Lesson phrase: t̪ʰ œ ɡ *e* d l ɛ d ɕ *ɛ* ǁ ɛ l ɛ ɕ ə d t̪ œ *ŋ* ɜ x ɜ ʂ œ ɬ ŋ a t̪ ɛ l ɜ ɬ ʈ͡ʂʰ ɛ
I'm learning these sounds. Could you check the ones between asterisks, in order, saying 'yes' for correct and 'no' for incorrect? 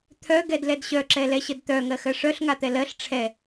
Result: no, no, yes

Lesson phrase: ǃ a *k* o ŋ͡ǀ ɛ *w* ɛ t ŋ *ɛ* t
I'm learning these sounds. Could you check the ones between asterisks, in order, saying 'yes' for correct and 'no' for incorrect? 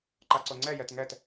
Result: no, no, yes

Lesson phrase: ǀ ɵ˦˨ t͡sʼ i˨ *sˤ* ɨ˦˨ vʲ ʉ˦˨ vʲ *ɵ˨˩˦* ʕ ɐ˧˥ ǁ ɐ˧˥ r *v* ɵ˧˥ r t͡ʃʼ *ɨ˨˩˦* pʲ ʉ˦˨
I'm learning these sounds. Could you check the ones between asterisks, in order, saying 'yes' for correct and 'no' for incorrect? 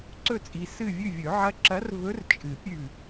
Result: no, yes, yes, yes

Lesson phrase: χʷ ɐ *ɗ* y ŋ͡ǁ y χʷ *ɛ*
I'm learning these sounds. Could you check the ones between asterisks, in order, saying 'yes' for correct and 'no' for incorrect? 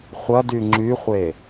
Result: no, no

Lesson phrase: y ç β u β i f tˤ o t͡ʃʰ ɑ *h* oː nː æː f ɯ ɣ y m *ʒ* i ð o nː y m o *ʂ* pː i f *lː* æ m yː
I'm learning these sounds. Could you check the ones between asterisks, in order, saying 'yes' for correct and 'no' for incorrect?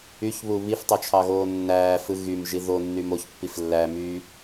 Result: no, yes, no, yes

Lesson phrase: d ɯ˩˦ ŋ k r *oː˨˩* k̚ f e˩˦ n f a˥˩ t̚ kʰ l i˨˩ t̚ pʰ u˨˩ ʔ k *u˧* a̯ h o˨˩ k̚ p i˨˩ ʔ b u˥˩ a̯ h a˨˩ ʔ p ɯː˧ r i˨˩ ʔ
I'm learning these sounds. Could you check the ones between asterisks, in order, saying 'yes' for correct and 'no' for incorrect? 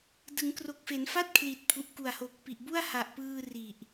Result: no, no

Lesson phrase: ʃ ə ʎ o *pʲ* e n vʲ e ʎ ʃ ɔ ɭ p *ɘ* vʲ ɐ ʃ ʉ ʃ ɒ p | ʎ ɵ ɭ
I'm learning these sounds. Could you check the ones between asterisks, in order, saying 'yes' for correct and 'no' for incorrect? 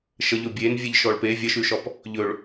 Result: no, no

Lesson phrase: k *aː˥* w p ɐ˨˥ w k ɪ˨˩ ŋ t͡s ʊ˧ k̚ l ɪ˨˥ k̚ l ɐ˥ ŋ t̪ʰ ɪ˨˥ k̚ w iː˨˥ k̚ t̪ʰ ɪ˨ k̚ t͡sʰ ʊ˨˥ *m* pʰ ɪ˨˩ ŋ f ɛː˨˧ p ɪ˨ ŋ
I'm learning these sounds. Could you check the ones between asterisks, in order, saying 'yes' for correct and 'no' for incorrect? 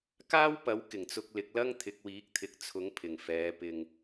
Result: yes, no

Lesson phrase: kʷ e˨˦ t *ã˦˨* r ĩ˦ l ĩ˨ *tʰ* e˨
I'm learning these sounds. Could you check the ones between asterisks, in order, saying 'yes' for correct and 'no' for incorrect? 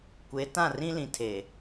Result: yes, yes

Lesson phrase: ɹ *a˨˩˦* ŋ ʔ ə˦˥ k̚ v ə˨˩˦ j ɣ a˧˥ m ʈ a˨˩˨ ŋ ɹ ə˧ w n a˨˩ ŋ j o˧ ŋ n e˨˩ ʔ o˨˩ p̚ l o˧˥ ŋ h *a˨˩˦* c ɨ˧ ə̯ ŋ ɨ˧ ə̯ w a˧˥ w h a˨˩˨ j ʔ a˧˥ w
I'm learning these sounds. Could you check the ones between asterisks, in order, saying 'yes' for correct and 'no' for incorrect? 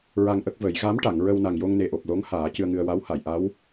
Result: no, no

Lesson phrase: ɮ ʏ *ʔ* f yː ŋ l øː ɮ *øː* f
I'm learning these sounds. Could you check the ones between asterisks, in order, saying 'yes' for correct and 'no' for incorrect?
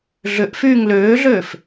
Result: yes, yes

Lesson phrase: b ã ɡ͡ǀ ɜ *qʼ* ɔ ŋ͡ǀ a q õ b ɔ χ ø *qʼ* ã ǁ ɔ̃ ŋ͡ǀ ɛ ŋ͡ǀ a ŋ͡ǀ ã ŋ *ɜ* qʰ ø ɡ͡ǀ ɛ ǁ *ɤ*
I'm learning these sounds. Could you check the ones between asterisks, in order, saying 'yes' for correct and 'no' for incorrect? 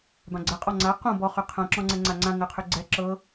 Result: yes, no, yes, yes

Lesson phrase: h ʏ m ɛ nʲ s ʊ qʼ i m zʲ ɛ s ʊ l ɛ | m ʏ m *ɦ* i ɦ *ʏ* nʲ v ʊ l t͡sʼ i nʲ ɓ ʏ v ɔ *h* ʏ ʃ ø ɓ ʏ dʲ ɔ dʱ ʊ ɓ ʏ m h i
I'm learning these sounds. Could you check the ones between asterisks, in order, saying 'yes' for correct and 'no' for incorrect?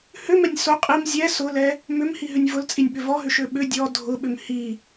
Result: no, yes, no

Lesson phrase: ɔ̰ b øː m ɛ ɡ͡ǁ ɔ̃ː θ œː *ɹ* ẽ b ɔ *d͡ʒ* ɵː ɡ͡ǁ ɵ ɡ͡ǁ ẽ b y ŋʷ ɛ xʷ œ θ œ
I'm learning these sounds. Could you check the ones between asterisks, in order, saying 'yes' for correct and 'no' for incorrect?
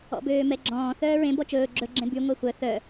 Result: yes, no

